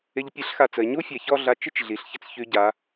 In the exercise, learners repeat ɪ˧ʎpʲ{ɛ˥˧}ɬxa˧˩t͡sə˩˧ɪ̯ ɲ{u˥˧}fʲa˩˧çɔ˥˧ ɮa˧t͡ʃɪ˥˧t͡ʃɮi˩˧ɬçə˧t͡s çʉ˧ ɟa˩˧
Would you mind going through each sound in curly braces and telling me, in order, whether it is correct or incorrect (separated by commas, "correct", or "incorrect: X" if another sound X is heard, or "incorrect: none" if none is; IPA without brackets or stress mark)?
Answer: incorrect: ɛ˧, incorrect: u˥